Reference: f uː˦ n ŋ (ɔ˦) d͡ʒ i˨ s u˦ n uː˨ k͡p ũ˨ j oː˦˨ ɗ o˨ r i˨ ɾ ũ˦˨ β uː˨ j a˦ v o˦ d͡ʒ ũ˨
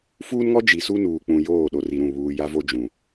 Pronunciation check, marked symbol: correct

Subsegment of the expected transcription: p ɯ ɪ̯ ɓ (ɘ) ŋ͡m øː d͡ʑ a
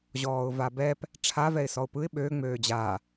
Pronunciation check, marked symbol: incorrect: ø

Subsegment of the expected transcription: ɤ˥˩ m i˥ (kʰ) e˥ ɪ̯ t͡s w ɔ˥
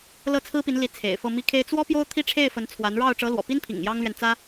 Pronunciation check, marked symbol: correct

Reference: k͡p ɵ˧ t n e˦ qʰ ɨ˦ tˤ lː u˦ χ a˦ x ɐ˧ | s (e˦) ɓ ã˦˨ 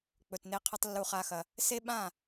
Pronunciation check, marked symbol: correct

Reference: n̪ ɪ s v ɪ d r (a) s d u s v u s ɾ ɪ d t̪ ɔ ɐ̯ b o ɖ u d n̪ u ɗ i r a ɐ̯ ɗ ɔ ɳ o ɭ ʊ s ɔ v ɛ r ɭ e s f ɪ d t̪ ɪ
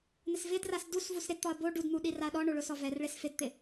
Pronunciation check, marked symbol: correct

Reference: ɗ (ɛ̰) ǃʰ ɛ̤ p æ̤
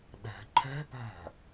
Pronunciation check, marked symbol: incorrect: ɛ̤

